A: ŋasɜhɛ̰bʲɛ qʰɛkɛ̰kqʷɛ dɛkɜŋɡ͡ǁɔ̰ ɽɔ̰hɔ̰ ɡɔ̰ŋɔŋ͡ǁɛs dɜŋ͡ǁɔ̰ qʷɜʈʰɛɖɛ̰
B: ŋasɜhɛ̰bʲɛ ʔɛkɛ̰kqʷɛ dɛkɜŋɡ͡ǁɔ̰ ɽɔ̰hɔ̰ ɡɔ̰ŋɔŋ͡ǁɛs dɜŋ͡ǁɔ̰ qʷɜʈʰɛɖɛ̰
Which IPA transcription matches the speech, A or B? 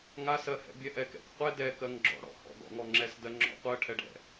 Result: B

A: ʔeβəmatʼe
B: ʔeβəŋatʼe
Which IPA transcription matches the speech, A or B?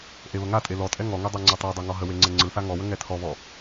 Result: B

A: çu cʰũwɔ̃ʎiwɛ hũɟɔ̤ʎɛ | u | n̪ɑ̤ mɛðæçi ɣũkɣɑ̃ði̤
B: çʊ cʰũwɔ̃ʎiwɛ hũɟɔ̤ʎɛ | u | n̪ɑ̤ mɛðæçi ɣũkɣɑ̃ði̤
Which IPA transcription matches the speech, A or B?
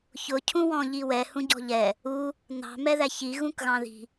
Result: B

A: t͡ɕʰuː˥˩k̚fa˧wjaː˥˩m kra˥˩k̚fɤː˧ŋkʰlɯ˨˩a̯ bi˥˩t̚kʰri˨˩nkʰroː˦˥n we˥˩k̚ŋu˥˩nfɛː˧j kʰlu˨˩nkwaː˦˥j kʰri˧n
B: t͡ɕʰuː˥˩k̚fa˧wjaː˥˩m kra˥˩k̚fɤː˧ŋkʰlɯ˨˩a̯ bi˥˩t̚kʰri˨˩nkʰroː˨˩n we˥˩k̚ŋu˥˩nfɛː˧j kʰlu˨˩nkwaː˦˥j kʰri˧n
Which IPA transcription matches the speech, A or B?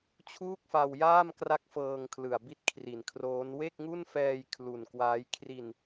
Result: A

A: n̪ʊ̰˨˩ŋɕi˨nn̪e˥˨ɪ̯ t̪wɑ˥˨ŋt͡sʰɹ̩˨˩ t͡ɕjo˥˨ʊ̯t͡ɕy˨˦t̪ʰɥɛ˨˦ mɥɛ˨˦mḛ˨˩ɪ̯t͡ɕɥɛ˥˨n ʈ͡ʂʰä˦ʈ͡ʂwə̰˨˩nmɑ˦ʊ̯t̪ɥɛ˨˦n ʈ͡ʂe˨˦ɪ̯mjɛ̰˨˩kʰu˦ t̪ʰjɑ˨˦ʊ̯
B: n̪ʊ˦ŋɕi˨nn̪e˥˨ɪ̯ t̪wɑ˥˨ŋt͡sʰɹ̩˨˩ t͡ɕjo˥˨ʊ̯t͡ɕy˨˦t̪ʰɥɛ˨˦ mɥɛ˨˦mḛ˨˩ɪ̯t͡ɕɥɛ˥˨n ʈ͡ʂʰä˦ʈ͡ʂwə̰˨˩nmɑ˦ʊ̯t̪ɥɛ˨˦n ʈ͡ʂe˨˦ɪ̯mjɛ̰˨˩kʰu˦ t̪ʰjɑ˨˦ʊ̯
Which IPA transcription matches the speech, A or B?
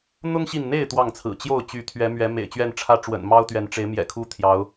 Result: B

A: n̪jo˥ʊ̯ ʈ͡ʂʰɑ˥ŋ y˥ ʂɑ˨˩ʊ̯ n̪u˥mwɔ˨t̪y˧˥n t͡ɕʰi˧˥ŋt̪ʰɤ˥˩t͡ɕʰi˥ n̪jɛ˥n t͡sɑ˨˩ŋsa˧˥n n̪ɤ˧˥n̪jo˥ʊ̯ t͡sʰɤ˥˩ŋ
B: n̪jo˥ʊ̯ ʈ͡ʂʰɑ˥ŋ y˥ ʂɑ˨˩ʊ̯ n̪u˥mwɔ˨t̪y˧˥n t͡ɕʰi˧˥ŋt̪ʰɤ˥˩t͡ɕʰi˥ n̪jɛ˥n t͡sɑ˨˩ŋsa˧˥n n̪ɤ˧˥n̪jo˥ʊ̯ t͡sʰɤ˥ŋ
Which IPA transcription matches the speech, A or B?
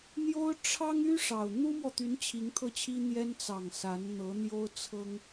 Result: B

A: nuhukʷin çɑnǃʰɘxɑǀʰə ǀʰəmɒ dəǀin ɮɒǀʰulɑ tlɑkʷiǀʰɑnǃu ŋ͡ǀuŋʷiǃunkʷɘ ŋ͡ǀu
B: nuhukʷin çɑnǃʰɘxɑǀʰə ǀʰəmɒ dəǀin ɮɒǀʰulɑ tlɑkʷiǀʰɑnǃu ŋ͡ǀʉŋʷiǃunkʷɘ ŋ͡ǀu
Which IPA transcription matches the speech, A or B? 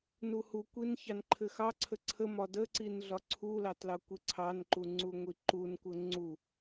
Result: A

